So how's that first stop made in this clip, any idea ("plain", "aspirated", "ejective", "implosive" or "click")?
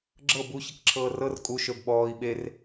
click